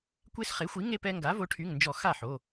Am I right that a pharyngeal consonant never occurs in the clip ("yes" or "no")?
no